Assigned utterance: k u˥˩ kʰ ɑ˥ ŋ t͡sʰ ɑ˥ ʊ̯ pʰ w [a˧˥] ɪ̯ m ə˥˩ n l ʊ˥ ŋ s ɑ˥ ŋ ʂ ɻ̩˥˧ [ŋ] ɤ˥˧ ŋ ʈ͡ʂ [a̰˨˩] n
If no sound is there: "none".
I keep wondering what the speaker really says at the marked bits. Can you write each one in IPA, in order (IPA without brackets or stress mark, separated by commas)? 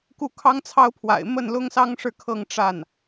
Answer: a̰˨˩, kʰ, a˥˩